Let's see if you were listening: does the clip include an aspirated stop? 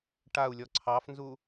yes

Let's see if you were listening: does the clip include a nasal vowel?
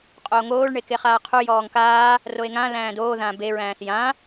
yes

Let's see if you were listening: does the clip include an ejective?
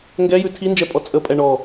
yes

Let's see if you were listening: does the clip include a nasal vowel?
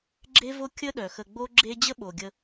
no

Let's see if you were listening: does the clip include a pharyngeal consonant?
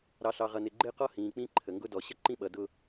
no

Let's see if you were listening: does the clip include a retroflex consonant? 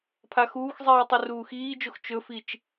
no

